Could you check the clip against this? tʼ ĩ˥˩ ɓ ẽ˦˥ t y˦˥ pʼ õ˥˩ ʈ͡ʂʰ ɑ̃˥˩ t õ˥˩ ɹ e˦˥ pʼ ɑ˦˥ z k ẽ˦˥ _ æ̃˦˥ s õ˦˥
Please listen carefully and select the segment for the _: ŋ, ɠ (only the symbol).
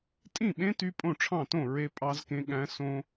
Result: ɠ